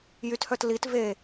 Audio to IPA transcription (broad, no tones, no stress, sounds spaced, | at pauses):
j y t h œ t l i t v e